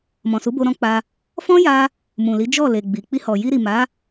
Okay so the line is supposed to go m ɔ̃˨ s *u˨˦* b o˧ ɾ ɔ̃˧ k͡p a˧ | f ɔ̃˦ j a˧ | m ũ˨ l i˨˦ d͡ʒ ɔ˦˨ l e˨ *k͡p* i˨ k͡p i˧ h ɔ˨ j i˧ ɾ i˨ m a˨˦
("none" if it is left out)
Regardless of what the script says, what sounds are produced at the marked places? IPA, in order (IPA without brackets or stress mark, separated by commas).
u˨˦, ɡ͡b